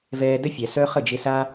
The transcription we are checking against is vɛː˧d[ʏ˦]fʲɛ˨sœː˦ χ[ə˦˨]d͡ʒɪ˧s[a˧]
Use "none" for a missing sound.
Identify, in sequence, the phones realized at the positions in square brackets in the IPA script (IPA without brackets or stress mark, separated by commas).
ə˦, ə˦˨, a˦